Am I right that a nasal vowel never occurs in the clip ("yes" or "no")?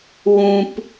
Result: no